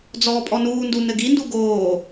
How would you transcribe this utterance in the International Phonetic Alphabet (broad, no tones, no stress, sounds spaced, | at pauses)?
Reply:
d͡z ɔː pʼ ɔ n uː n d u n ɘ ɡ i n d u ɡ oː